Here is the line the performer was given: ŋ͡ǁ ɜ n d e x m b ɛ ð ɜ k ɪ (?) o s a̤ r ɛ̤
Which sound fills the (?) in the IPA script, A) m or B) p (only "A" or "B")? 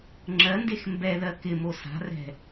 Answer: A